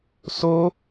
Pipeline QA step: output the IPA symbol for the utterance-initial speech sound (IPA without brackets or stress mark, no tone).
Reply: s